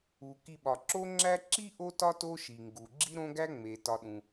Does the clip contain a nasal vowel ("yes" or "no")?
yes